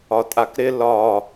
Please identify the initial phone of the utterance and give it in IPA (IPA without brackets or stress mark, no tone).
ɒ